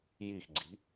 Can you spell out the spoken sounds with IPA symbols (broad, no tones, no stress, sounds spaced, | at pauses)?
j i x ɡ͡ǀ i̤